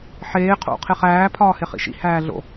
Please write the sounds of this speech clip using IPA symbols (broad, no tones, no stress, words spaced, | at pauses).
ħeː qʰo̰ qʰeχæː pʰɒːheχḭʃḭ hæːɮo̰